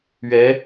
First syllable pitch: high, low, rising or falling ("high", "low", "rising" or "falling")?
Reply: rising